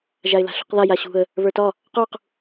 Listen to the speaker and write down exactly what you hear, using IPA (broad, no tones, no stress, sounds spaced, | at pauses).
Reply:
ʒ a ɪ̯ l a̤ ɬ ṳ q ð a j a ɕ ṳ ə̯ | β ə˞ t ɒ | q u q